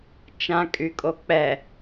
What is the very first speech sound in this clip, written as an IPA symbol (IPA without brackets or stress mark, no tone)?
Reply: t͡ʃ